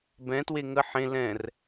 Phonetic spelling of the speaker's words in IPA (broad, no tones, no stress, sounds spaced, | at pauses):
b ɛ̃ t w e ŋ ə ħ ẽ l ɛ̃ r